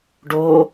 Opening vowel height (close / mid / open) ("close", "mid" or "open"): mid